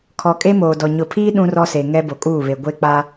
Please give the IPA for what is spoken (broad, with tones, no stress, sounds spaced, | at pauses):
kʰ ɔ˨ kʼ e˦ m oː˨ d ɔ˨ ɲ ʊ˨ pʰ iː˦ ɗ ũ˦ r ɔ˦ s e˨ ŋ ɛ˦ b o˨ kʼ uː˦˨ β e˨ ɡʷ e˦ k͡p a˦